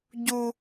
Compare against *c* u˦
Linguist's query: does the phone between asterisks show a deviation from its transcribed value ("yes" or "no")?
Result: yes